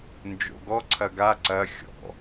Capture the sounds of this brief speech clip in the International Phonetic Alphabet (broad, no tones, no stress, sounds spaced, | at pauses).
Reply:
n d͡ʒ o̰ ɡ ɔ ǀʰ ɐ ɡ a ǀ ɐ xʲ ɔ̰